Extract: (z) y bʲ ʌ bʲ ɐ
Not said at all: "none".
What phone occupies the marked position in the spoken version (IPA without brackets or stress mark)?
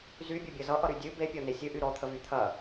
z